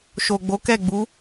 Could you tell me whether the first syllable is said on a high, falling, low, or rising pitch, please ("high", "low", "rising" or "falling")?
low